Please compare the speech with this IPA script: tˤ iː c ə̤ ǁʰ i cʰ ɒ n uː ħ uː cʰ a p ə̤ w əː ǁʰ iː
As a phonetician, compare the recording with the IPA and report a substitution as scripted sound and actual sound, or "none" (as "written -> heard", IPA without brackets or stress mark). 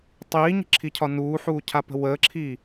c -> ɲ